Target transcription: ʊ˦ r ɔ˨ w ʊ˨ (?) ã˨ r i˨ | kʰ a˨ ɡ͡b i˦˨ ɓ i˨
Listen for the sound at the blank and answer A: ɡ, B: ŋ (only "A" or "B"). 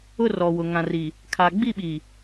B